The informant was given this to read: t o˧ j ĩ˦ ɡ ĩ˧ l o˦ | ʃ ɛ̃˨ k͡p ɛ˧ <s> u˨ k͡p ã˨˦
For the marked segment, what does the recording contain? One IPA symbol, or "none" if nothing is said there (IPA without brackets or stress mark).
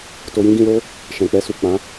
s